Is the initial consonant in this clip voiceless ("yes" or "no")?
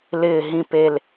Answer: no